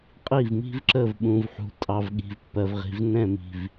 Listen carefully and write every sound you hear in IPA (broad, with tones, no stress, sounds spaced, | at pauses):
qʼ i˦˨ v m i̤˦ v ǁ ə˦˨ v ɓ ũ˨ v ħ ṳ˨ tʼ ɑ˨ v ɠ i̤˨ v pː ɜ˨ v ʁ i̤˨ v n ɛ̃˦˨ m i̤˨ v